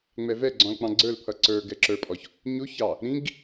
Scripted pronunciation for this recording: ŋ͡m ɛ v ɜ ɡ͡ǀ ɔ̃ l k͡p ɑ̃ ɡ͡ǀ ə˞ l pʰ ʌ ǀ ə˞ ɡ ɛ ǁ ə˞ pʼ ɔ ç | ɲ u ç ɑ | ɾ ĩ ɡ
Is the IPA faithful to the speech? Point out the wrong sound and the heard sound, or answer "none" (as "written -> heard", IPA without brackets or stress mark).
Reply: ɜ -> ɛ